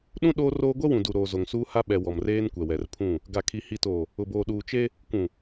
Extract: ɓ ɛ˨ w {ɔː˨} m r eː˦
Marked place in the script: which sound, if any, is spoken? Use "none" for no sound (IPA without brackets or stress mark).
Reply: ɔ˨